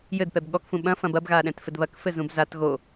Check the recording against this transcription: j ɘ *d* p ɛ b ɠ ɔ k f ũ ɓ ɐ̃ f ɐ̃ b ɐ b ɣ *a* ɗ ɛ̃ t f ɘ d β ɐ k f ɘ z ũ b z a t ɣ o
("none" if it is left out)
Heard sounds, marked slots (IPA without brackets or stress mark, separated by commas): d, a